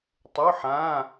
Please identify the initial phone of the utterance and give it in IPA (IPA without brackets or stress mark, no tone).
tˤ